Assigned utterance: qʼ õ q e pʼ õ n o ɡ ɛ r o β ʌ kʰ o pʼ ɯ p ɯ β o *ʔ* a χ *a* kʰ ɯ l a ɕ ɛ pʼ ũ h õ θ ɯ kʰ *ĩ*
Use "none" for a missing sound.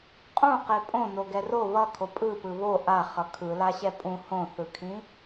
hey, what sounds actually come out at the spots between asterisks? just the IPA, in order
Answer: ʔ, ʌ, ĩ

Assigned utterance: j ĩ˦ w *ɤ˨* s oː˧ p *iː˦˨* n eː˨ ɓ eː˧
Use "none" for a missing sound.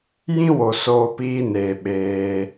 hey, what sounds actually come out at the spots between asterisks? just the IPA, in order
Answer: o˨, iː˧

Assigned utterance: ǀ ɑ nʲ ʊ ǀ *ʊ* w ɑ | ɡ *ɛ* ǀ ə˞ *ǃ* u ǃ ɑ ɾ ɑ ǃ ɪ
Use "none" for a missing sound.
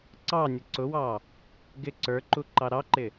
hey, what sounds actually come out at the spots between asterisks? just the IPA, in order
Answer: ʊ, ɪ, ǃ

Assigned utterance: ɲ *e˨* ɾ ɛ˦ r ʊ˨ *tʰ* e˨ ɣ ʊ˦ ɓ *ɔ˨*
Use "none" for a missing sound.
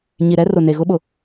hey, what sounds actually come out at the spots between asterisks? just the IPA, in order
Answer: i˨, n, ʊ˨

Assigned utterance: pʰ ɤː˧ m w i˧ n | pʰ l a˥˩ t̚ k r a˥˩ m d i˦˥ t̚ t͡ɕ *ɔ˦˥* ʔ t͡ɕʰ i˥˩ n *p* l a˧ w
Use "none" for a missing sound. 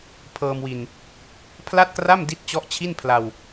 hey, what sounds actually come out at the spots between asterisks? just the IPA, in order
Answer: ɔ˦˥, pʰ

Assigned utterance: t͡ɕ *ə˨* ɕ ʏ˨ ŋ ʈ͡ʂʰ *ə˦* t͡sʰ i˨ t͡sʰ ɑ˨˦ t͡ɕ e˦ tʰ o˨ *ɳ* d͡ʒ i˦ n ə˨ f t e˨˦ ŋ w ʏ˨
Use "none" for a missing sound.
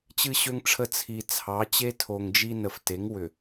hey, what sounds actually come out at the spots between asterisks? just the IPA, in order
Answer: ɨ˨, ə˨, ŋ

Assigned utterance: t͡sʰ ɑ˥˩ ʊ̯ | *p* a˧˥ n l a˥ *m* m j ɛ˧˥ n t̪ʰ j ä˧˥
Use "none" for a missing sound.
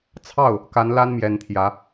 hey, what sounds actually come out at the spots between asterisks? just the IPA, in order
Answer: k, n

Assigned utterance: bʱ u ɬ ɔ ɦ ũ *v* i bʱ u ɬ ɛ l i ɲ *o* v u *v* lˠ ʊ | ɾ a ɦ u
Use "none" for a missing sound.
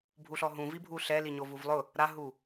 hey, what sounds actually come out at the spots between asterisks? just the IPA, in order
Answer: v, o, v

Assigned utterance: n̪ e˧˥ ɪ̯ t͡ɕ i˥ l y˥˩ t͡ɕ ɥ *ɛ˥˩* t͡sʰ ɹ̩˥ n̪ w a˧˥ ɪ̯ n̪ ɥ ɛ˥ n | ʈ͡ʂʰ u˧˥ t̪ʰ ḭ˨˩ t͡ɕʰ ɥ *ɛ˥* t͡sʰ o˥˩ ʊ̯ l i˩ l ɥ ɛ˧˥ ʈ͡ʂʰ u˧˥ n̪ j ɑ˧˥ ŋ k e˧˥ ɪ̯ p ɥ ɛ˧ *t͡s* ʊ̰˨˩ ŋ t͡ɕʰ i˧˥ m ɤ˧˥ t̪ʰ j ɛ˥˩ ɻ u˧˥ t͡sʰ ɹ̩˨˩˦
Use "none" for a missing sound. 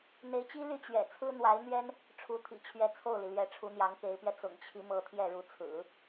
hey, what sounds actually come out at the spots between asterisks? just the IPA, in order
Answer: ɛ̰˨˩, ɛ˧˥, t͡s

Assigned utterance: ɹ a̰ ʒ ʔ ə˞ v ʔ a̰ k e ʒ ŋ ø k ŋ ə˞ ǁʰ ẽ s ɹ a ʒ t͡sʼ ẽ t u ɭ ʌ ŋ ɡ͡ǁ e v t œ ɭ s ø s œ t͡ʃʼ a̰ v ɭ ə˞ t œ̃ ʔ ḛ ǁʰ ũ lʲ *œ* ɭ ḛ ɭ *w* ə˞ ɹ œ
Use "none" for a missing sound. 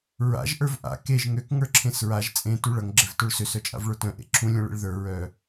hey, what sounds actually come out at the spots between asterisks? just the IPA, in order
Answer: œ̃, ð

